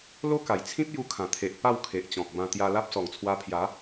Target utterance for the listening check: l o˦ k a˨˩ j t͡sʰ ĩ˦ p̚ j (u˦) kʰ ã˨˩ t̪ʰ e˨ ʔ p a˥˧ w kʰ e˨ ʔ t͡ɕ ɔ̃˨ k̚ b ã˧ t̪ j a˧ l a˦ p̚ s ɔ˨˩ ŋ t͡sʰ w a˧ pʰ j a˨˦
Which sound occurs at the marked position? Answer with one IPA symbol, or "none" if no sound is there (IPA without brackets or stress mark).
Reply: u˧